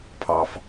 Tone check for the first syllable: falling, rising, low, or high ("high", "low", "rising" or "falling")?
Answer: low